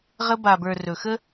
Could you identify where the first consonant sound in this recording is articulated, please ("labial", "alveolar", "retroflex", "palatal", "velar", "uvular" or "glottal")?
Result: uvular